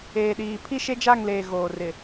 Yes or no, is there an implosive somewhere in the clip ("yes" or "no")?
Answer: yes